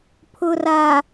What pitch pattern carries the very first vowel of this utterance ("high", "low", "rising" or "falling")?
low